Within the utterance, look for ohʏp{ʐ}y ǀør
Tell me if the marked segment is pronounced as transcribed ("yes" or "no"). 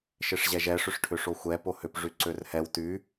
yes